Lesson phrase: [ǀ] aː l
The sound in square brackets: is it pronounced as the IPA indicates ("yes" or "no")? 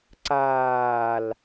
yes